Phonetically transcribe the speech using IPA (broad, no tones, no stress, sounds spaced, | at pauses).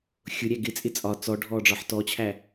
xʲ ʊ ɾʲ æ ɡ ɪ t͡sʼ ɪ t͡sʼ ɒ t͡s ɔ ɖʱ ɔː ɖ͡ʐ ɒ ħ t ɔ t͡ɕʰ æ